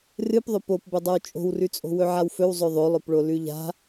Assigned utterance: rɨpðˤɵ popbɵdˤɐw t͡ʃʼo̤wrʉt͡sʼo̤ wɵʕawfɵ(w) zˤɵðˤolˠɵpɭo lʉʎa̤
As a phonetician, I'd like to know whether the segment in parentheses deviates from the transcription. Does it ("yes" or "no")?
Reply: no